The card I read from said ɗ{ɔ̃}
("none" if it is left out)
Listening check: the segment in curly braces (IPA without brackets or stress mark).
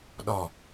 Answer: ɔ